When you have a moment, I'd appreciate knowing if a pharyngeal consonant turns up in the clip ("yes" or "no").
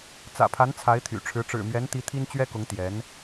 no